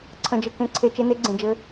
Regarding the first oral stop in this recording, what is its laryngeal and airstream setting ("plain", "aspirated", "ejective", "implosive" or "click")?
click